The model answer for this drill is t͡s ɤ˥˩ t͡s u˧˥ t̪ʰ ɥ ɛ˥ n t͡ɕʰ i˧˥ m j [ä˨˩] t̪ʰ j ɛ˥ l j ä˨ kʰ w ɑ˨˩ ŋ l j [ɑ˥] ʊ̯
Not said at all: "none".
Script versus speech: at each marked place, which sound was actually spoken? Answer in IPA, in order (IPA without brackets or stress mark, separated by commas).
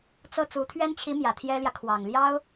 ä˨˩, ɑ˥